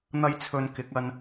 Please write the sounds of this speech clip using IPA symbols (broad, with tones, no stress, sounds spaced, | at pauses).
n̪ ɐ˥ j t͡sʰ ɵ˧ n k ɪ˨˥ k̚ ɐ˧ n